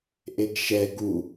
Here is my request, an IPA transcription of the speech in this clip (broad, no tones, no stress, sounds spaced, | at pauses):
ʔ e ɡ ʃ ɛ ɡ u